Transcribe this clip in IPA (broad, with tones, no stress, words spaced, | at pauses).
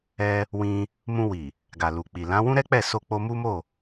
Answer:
ɛ˧ | wĩ˧ | mũ˧wi˨ | ɡa˨lu˨k͡pi˨ lã˨˦wũ˦ ɾɛ˦k͡pɛ˦˨ so˧ k͡po˧mu˦mo˦˨